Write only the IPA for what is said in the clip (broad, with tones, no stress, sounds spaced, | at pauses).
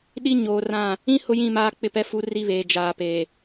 ɗ i˦ ɲ oː˨ r ã˦˨ | ĩ˦ h ʊ˦ j ĩ˦˨ m aː˦ k͡p ɪ˦ p ɛ˦ f u˦ r i˦ β eː˨ d͡ʒ aː˨ p eː˨